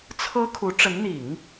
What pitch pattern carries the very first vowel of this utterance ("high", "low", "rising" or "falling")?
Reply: high